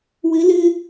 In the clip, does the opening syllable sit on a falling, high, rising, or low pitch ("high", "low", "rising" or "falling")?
rising